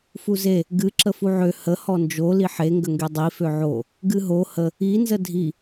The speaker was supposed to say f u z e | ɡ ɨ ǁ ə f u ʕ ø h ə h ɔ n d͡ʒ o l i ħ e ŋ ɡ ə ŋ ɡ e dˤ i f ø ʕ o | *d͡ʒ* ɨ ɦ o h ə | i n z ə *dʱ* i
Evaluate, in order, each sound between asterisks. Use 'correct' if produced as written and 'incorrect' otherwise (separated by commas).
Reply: incorrect, correct